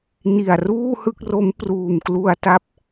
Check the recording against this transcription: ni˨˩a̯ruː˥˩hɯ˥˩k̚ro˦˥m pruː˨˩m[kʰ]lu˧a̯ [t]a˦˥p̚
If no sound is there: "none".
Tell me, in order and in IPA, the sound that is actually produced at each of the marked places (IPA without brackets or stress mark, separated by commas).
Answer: k, t